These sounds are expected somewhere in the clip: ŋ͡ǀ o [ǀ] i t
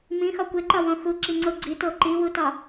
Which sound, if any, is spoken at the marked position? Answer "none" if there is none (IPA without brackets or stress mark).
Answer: ɡ͡ǀ